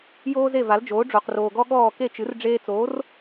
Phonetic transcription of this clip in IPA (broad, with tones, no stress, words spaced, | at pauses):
joː˥ze˥˩va˩˥ld͡ʒoː˩˥ ɖ͡ʐo˩qroː˩ɡɔ˥ ɠɔː˥˩ ke˥˩t͡ʃɨ˩˥r ɖ͡ʐeː˧t͡soː˩˥r